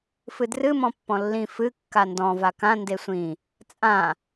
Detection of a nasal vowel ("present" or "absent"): present